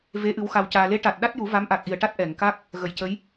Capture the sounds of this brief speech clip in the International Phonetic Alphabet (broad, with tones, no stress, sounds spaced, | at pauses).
v e˧˥ ʔ ɨ˧˥ w x a˧ w c aː˧ l e˧˥ ʈ a˨˩ t̚ ɗ a˦˥ t̚ j u˨˩˦ v a˧˥ m ʔ a˨˩ k̚ ʔ i˨˩ ə̯ ʈ a˦˥ t̚ ʔ ɛ˨˩˨ ŋ k a˦˥ k̚ | ɣ ə˨˩˨ j c ə˧˥ j